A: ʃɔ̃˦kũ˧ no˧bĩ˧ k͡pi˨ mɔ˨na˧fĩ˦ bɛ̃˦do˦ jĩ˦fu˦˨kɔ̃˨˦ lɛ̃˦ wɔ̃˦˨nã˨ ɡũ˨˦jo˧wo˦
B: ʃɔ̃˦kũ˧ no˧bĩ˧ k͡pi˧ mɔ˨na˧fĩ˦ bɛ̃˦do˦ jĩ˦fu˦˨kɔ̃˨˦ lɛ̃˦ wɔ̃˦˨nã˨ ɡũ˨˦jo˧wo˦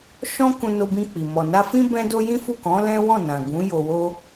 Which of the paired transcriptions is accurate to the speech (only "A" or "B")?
A